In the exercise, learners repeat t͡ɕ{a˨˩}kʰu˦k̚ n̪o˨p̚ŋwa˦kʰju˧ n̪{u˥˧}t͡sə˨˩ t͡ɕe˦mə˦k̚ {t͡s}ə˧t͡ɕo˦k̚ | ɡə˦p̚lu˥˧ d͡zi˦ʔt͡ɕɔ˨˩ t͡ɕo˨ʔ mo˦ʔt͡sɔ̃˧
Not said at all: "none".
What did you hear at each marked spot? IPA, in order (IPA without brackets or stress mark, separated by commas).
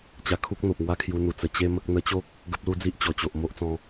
a˧, u˨˩, n̪